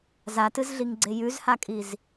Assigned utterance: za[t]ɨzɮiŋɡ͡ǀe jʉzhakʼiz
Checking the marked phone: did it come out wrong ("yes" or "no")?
no